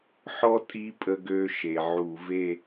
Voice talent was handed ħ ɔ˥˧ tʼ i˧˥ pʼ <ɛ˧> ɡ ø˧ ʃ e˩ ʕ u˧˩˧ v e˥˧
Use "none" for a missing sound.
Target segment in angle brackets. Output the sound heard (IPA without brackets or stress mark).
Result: ə˧